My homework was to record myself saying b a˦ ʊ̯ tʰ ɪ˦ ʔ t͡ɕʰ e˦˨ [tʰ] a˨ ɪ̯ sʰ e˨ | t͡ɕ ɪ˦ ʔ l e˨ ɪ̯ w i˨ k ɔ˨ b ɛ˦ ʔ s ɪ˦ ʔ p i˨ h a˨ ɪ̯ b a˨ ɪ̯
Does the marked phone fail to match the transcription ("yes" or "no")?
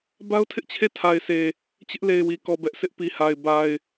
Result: no